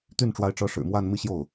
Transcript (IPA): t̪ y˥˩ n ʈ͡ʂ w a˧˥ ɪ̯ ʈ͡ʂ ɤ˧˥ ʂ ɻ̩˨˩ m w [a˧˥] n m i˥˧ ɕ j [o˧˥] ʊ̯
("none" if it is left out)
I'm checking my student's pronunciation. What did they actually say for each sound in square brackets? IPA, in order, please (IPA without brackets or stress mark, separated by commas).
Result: a˥˧, o˥˩